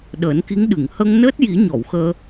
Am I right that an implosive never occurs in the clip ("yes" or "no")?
no